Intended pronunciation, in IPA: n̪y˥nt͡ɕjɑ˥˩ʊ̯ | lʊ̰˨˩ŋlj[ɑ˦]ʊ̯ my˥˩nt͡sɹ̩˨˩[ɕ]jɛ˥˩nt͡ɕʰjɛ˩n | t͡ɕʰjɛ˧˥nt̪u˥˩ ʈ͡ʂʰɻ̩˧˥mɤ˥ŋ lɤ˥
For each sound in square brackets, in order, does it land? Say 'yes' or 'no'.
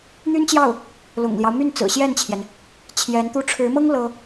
yes, yes

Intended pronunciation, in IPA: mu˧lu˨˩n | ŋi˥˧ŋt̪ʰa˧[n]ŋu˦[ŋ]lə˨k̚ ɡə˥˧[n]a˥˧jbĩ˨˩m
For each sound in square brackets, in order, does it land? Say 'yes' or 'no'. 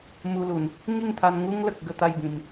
yes, yes, no

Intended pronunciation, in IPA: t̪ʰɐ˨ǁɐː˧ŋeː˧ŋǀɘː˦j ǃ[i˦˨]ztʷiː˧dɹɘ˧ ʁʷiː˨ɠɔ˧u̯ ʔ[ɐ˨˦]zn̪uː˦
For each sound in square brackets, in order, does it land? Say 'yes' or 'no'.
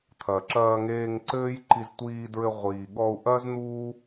no, no

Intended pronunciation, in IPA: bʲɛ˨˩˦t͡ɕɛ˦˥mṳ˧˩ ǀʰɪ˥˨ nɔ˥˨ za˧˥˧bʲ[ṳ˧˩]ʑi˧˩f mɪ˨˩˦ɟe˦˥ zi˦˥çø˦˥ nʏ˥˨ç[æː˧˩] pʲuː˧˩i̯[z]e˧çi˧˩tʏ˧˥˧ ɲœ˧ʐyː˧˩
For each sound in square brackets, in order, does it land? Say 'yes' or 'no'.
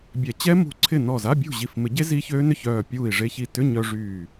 no, no, no

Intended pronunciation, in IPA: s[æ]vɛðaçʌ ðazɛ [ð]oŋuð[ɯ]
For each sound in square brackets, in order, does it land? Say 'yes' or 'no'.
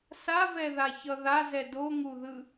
no, no, yes

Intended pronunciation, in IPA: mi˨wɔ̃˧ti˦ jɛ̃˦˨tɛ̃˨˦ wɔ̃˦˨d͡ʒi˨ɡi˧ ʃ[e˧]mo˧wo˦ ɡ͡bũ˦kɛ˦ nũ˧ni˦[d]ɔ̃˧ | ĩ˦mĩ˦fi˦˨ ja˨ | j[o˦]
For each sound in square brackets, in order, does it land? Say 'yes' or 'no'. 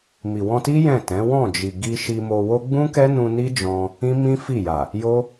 no, no, yes

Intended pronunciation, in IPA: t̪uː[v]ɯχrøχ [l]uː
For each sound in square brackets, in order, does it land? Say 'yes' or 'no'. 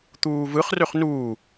yes, no

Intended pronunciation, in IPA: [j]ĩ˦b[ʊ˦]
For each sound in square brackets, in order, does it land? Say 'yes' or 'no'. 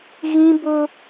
no, yes

